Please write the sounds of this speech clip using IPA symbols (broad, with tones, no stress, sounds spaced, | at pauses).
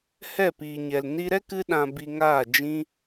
h ɛ˦˨ p iː˨ ɲ ɛ˨ l n i˧ ɾ ɛ˦ k ɨ˦ ɗ ã˧ b i˧ ŋ aː˦˨ d͡ʒ ĩ˧